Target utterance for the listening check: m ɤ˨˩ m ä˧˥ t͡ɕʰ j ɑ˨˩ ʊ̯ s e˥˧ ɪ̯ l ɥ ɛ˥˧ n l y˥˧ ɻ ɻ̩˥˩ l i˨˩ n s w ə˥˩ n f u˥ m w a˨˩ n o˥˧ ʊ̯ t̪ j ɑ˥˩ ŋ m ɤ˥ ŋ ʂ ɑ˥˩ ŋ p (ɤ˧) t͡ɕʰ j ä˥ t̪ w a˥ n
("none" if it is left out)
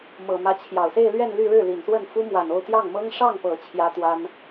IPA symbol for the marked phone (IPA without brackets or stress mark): ɤ˨˩